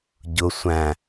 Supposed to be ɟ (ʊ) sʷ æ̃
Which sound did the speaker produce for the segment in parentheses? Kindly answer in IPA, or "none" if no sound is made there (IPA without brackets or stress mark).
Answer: ʊ